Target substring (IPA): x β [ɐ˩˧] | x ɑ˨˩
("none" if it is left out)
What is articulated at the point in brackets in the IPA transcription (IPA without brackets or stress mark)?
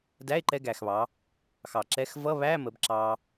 ɑ˩˧